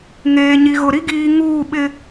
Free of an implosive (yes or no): no